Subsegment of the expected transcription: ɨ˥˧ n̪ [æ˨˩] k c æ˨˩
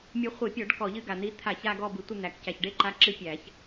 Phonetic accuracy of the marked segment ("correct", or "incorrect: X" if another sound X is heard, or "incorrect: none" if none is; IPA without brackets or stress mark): correct